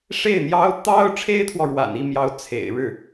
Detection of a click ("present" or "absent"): absent